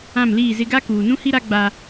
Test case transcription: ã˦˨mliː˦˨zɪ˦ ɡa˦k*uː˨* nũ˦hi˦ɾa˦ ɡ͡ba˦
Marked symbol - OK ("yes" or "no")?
yes